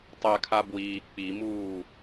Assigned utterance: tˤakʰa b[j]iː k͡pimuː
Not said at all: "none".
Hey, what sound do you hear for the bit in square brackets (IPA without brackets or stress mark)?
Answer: w